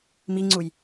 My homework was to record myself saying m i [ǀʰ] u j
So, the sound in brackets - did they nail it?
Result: no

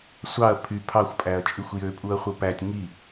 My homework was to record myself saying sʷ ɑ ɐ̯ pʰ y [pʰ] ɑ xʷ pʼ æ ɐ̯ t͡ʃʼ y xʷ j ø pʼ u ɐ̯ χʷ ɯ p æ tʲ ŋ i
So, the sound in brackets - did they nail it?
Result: yes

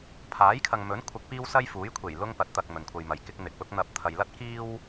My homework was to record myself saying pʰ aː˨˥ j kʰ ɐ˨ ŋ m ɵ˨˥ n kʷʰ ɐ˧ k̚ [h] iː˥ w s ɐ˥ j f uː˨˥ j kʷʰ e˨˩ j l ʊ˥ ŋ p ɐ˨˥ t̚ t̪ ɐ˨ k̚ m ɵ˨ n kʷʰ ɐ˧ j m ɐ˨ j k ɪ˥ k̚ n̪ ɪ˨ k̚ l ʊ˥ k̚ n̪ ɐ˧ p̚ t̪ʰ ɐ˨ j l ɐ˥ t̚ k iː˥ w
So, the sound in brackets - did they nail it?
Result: no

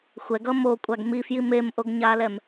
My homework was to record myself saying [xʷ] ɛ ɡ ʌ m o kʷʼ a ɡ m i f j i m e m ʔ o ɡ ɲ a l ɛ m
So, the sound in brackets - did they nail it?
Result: yes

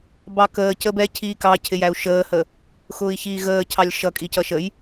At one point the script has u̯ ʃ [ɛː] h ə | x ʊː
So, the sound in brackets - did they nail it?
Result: no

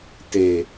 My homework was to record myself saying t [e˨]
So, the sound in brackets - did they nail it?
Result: yes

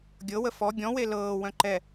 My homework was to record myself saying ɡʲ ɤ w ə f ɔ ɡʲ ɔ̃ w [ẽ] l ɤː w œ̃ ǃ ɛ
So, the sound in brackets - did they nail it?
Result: no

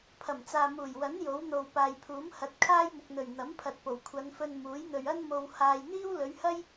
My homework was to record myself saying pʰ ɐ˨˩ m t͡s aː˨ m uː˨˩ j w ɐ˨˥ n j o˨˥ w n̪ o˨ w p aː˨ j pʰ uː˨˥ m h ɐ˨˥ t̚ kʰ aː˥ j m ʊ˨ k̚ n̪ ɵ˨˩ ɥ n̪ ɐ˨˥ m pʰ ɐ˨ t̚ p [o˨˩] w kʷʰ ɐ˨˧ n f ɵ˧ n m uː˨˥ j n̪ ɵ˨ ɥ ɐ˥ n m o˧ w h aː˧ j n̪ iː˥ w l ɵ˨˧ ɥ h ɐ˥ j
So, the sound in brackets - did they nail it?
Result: yes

